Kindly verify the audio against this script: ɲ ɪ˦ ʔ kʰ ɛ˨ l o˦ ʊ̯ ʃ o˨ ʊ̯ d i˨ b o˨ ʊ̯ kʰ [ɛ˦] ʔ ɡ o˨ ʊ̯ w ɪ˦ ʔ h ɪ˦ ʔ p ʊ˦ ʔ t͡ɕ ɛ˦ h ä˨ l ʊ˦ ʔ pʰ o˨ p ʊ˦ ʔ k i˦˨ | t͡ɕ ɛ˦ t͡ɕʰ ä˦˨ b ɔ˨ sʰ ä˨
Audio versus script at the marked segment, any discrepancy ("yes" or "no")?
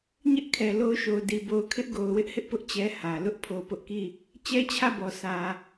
yes